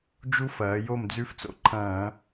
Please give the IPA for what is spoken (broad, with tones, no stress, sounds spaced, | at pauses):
d͡ʒ u˧˥ f ɐː˩˧ j o˥˩ m d͡z ʉ˧˥ f t͡s o̰˧ ǃʰ ɐ̃ː˧˩˧